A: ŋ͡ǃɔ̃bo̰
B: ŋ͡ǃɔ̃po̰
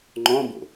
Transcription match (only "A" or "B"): A